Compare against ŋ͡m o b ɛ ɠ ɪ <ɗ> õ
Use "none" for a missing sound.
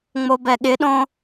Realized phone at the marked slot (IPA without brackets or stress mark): ɗ